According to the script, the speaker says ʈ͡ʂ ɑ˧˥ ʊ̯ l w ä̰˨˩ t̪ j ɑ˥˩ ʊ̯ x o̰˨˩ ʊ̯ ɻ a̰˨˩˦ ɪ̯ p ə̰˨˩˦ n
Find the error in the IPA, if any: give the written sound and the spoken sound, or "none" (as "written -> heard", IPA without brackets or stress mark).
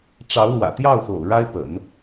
a̰˨˩˦ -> a˥